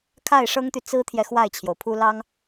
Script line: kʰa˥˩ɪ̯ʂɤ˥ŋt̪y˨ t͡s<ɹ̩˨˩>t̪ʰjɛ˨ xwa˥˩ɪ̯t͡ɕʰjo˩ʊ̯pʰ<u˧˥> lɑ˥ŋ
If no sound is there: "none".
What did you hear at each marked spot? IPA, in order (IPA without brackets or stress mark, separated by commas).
ɹ̩˥, u˥